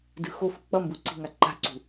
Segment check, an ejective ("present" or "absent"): absent